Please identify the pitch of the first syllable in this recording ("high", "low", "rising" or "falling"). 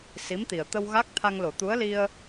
rising